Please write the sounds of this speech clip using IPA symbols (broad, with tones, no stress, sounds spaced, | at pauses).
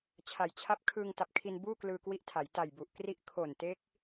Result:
t͡ɕʰ a˩˦ j t͡ɕʰ a˦˥ p̚ kʰ ɯː˧ ŋ t a˨˩ p̚ kʰ i˧ n b uː˥˩ k l ɯː˧ k w i˦˥ ʔ tʰ a˩˦ j t a˨˩ j b u˨˩ ʔ k r i˦˥ ʔ kʰ o˨˩ n t e˦˥ k̚